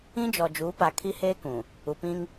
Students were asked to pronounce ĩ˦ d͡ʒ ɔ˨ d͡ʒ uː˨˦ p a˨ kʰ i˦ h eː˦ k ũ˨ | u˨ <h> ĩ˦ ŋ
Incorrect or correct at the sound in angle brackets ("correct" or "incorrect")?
incorrect